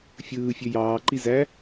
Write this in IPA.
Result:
fʲ ɯː fʲ ø j ɑː ǃ i z æ

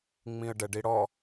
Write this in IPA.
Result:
ŋ͡m ĩ ə̯ ɖ ɛ ɖ i ɽ ɔ

